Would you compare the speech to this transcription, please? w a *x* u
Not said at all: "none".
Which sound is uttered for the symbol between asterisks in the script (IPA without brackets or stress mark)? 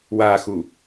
x